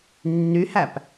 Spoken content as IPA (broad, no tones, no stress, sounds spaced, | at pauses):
nː y h æ p